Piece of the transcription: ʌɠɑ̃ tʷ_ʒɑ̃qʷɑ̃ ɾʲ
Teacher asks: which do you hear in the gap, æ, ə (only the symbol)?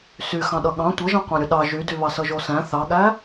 ə